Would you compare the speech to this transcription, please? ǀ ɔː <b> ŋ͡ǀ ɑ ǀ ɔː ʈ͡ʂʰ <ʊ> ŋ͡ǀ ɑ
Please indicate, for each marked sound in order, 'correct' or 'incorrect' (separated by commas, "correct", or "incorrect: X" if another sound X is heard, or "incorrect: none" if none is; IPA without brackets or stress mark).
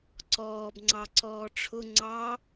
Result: correct, correct